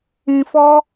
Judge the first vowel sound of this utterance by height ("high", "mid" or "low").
high